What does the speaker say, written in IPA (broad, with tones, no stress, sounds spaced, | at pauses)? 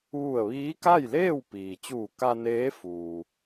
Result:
ʋ u˧˩ ə̯ ʋ iː˧˥ k a˥˨ j l eː˥˨ w p iː˩ t͡ɕ uː˧˩ k a˧ n eː˧˥ f uː˩